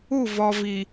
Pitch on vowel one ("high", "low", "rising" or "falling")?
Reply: falling